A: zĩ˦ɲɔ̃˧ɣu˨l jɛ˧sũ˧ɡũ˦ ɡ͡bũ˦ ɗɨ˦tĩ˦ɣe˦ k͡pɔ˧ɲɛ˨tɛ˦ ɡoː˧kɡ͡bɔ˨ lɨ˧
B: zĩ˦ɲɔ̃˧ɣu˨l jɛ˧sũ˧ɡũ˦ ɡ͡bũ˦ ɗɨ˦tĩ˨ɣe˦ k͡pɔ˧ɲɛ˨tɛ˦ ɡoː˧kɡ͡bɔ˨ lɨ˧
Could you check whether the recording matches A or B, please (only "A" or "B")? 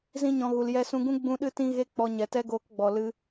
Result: A